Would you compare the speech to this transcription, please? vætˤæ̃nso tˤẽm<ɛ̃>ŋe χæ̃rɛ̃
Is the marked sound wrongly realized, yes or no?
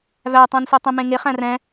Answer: yes